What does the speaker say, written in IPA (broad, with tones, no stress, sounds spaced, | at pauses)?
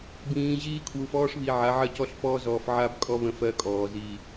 b ĩː˨ ʑ iː˦ kʰ w u˨ f ɔː˦ ʂ β i˨ ʕ a˨˦ ʕ ɜ˦ c ɔ˦ ɬ f ɔː˦ z ɔː˨ f ʕ a˦ b kʼ ɔ˦ β ə̃˦ f ɜ˦ kʼ ɔː˨ z iː˨